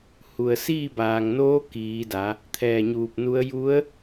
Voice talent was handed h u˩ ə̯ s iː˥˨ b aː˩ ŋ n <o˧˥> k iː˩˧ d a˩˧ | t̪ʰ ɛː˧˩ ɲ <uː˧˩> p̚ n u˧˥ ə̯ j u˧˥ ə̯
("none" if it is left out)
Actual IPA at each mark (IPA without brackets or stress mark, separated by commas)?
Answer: oː˧˥, uː˧˩